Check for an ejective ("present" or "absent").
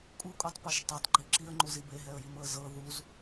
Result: present